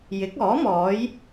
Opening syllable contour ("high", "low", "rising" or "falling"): rising